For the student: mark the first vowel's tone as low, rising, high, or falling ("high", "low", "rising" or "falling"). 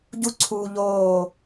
high